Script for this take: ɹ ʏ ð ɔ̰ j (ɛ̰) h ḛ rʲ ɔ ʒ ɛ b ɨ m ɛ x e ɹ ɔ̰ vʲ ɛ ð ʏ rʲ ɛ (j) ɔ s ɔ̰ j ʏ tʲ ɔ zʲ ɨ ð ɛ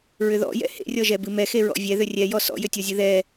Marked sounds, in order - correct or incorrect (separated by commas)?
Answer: correct, correct